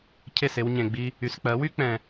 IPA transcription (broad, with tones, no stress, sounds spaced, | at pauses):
cʰ e˥˩ s e˧ w ɲ ẽ˩ ɡ͡b i˧ | y˩ s k͡p ɜ˩˥ w y˥ k͡p ɛ̃˩